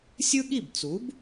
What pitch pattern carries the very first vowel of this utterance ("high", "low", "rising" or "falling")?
high